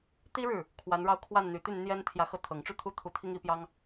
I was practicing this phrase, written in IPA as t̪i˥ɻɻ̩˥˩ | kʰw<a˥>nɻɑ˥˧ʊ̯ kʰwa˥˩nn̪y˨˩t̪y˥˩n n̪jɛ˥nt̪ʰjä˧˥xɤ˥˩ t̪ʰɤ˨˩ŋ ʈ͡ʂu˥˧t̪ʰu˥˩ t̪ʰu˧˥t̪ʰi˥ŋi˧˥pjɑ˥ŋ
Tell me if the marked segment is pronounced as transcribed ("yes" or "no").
no